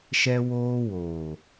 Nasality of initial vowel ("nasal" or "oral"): oral